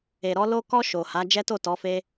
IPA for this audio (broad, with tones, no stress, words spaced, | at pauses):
e˨ɾɔ˧ lo˧kɔ˧ ʃo˨ha˨˦ d͡ʒɛ˦to˦˨tɔ˨˦ fe˦